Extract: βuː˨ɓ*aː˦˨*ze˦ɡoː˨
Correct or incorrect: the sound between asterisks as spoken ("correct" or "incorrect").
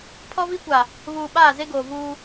correct